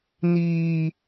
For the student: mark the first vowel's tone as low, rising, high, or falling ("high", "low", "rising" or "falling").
high